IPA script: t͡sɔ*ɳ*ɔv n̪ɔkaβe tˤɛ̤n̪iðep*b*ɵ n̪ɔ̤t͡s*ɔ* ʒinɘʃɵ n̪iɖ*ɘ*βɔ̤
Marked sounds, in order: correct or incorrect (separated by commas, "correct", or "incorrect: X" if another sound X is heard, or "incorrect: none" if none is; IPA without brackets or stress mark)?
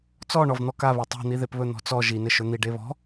correct, incorrect: β, correct, incorrect: e